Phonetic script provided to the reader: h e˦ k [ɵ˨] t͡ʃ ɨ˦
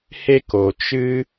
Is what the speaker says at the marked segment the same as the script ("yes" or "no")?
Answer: no